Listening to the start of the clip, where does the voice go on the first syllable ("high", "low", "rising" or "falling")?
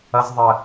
high